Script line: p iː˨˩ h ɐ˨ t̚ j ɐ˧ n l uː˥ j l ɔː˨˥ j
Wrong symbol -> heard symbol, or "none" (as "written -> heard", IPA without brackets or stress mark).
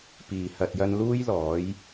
none